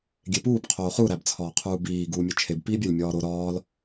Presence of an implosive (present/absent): absent